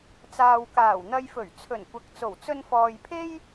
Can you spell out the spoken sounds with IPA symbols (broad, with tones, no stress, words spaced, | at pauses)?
t͡saː˨wkaː˨˩wn̪ɐ˧jfɵ˨˩ɥ t͡sʰɵ˨˩nkʷɐ˨k̚t͡so˨˩w t͡sɵ˧nfɔː˨jpʰe˥j